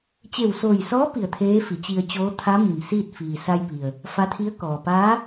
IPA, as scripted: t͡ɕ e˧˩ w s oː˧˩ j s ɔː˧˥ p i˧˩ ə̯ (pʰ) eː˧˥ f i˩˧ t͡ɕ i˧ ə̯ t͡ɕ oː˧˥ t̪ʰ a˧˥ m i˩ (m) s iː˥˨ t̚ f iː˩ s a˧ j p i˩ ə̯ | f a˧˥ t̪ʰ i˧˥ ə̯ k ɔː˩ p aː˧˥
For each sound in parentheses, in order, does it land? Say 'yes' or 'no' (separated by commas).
no, yes